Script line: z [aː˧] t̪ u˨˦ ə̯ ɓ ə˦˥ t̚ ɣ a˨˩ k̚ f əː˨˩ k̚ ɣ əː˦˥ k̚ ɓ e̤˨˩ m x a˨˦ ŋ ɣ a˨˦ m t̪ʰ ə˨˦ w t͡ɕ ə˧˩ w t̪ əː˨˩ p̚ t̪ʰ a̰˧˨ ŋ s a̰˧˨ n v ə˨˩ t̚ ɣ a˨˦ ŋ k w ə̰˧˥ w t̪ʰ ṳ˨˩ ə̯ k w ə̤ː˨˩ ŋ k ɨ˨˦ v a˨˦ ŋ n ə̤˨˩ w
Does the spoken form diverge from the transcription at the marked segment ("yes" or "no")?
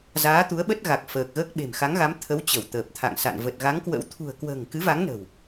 yes